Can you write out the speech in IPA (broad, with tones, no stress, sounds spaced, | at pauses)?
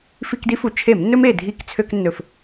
f i˧˩˧ k d i˦ f u˨˩ t͡ʃʰ e˧˩˧ m nː ɵ˦ m e˨˩ dʱ i˧˩˧ k t͡sʰ ø˧˩˧ k nː ɵ˨˩ f